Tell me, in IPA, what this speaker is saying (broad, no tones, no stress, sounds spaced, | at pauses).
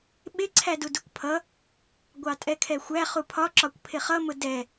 ɓ ɪ ǀʰ æ d u d u kʷ pʰ ʌ | ɡʷ ɑ tʼ ɛ kʰ ɛ xʷ æ χ u pʰ ɒ ǁ ɒ kʷ pʰ ɪ χ ʌ m ʊ d ɛ